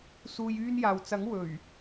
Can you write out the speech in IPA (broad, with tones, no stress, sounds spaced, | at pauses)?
s uː˧ j yː˧ n j aː˨ w t͡s ɐ˨˥ ŋ w ɵ˨˩ ɥ